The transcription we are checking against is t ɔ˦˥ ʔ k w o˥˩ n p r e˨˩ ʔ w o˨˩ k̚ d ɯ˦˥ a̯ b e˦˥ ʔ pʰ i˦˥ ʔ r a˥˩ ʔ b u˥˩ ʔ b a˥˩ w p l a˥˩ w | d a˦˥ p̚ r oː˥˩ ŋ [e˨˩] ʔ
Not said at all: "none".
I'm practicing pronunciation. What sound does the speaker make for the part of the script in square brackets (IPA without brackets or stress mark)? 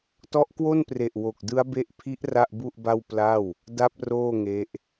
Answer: e˦˥